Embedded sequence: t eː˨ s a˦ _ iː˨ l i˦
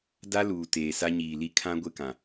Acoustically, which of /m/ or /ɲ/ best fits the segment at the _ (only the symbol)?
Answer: ɲ